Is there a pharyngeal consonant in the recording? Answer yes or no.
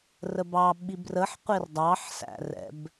yes